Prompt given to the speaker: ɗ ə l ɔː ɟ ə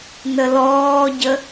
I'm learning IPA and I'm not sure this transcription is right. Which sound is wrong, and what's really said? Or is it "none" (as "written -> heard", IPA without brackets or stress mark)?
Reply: ɗ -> n